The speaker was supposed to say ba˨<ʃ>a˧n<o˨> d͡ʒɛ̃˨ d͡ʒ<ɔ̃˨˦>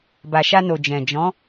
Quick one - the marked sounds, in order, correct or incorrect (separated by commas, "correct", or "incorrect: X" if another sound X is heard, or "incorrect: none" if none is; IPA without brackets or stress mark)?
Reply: correct, correct, correct